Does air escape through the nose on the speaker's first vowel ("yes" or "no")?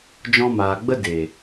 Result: yes